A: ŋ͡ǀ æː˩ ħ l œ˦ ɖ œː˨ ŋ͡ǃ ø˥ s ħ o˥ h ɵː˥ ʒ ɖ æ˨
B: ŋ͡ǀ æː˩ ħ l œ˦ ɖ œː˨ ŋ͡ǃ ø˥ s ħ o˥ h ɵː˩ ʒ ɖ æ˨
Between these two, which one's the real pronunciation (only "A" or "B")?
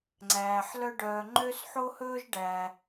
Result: A